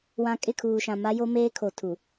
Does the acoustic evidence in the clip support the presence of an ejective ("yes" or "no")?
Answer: yes